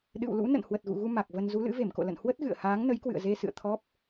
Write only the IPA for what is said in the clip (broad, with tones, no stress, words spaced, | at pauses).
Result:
ɗɨ̰˧˨wlṵ˧˥ nə̰˧˨n hwə˨˩t̚ɣṵ˧˨ɣu˧ ma˨˩k̚və˧n zu˨˦lɨ̰˧˥ve˧˩mko̰˧˨ lə̰˧˨n hwə˦˥t̚ɣɨ̰˧˨ə̯ haː˨˦ŋnə˨˦jkwɨ̰˧˨ə̯ze˧ sɨ̰˧˨ə̯t̪ʰɔ˦˥p̚